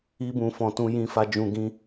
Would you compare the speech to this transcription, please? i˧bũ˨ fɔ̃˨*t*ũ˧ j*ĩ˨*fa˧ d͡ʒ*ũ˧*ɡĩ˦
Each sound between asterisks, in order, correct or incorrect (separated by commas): correct, incorrect, correct